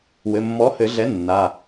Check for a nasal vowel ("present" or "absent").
absent